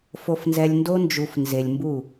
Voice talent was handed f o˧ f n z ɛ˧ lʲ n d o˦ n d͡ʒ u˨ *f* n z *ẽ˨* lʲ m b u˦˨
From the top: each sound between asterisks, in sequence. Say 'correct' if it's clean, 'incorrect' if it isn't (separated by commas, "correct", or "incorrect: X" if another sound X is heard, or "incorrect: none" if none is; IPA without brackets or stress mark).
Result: correct, incorrect: e˨